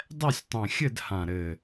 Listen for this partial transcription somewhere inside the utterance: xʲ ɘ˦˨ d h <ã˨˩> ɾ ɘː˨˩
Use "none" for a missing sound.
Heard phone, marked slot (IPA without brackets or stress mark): ã˨˩